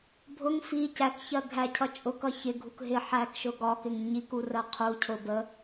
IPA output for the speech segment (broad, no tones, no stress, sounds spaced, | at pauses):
bʱ ʊ ŋ f i c æ k ç ɜ ɡʱ æ cʰ ʌ t͡ʃʼ ʊ k ʌ ç ɪ ɡʱ u k ɦ ɪ ħ æ k ʃ ʊ ɡ ɒ k ɪ ŋ ɲ i k u r ɜ qʰ u cʰ ʊ b ə